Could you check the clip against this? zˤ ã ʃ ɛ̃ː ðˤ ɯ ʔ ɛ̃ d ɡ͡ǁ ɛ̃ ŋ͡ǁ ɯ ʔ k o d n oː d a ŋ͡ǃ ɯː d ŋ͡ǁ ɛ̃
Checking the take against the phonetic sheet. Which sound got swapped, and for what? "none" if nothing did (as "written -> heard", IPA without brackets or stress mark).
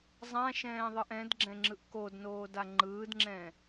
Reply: none